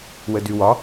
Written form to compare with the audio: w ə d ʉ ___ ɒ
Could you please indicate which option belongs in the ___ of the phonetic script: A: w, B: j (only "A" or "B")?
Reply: A